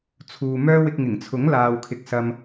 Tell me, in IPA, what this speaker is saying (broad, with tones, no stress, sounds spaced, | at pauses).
t͡sʰ uː˨ m œː˥ w ɪ˧ k̚ ŋ ɪ˨˩ ŋ t͡sʰ ʊ˨˥ ŋ l aː˨ w kʰ ɪ˨ k̚ s ɐ˧ m